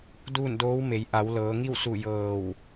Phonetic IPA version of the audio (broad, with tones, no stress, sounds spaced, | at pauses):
d uː˥˨ n d oː˧˥ w m e˩˧ j ʔ a˩˧ w l ɤː˩˧ ŋ i˥˨ w s u˧˩ j ɤː˧˩ w